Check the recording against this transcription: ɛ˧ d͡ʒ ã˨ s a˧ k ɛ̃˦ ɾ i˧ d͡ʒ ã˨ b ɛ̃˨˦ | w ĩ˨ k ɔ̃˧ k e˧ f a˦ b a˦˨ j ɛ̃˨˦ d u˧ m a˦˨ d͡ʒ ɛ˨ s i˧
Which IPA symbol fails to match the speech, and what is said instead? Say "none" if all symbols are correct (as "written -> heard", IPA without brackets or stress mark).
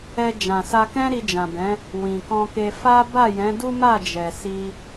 u˧ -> u˦